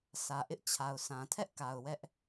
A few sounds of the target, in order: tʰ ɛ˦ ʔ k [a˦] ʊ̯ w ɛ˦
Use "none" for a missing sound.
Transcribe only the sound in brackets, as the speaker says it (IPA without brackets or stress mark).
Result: a˨